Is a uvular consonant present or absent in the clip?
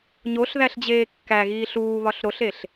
absent